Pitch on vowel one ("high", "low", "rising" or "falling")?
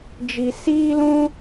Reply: low